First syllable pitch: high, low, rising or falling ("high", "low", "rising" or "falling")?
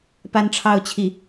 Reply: high